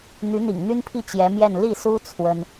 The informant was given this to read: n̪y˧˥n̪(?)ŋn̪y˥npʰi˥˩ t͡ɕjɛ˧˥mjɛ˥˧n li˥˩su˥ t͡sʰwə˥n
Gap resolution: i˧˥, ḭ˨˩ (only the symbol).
ḭ˨˩